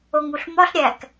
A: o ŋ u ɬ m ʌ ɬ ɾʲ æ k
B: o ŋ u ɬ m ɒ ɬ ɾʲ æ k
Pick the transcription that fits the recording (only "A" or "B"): B